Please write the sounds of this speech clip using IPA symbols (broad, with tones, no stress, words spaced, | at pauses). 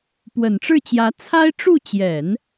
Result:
pwə˨˩nʈ͡ʂɻ̩˥˩t͡ɕjä˧˥ t͡sʰa˥ɪ̯ʈ͡ʂu˥˩ t͡ɕjɛ˨˩˦n